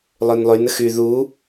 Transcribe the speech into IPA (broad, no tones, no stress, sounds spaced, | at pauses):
lˠ ø n lˠ y n ə x y ð u